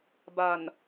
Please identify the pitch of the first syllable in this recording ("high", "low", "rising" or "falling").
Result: low